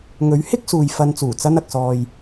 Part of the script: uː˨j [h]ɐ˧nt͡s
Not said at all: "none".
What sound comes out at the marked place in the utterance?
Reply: f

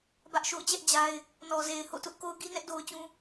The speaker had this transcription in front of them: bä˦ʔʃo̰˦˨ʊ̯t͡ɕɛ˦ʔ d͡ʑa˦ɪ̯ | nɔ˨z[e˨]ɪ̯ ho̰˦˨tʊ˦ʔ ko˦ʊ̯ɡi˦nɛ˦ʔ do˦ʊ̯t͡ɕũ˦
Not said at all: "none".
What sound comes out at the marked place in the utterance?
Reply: e˨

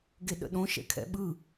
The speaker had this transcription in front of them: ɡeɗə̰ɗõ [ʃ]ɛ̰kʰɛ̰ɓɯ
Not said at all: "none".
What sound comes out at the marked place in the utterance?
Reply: ʃ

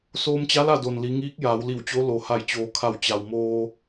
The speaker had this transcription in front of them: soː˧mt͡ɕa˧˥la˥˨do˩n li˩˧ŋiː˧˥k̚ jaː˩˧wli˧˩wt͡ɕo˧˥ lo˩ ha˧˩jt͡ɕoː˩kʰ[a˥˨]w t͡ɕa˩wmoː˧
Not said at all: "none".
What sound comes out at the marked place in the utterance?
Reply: a˧˩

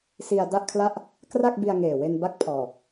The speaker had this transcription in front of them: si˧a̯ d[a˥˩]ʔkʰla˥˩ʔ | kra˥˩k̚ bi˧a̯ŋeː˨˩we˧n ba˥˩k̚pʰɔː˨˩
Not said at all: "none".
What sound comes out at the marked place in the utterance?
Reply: a˥˩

